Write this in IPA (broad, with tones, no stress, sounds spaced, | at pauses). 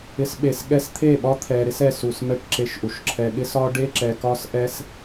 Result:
ɪ˨ s ɓ e˨ s ɠ ɛ˧ s t̪ʰ e˦˨ ɓ ɒ˦ t̪ʰ ɛ˨ ɾ ɪ˧ s ɛ˨ s u˨ s m ɛ˧ ʈ ǁ e˧ ʃ ʔ u˨ ʃ ǁʰ ɛ˧ ɠ ɪ˦ s ɒ˦ ɖ e˦ ǁ ɛ˧ k ɒ˦ s ʔ ɛ˦ s